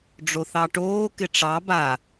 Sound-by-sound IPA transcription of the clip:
ɖ͡ʐoθɑʈoː kɪʈ͡ʂɑ ba

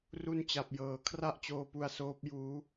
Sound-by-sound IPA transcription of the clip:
ru˦˥nt͡ɕa˨˩p̚jɤː˩˦ kʰra˥˩ʔt͡ɕoː˧pu˧a̯soː˦˥p̚ juː˦˥

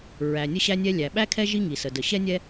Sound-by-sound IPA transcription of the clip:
ɹæ˩nʲə˥ɕæ˥nʲɛ˥ lʲæ˩ɓæ˥kʰɛ˥ ʒi˥ŋi˩sə˩ də˩ɕɛ˥ nʲɛ˥

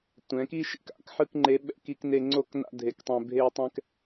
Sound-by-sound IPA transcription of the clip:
tʷɛ̃˩˥ki˥ʃḭ˥ka̰˥˧k ħɯ˥˧kŋ͡ǃe˧˥ɓɛ̰˥˧k i˥kne˥ ŋ͡ǀo˥kna̰˥ dʱe˥˧ktˤɛ̃˥ bʱe˥˧tˤɛ̃˥k

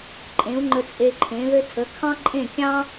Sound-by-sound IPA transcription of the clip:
ǃʼẽ˩˥u̯ŋ͡ǃə˧ t͡sʼe˧ǃʰẽ˩˥ðɘ˥ tʰə˩˥kʰɑ̃˥ǃʼẽ˥˩kʲɑ̃˥

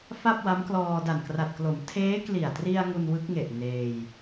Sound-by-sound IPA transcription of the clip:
fa˥˩p̚wa˦˥mklɔː˧ da˨˩nkra˨˩t̚klo˩˦m tʰeː˦˥kli˨˩a̯tri˧a̯ ŋu˧nwɯ˦˥k̚ŋe˨˩ʔ neː˧j

